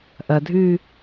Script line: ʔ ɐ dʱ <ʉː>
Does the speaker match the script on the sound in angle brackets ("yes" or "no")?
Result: yes